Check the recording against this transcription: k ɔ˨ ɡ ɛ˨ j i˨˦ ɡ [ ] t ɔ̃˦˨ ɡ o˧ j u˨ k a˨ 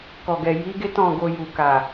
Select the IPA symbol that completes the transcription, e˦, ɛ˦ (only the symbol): e˦